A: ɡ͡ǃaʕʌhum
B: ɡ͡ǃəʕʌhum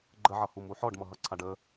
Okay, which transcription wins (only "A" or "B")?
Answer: B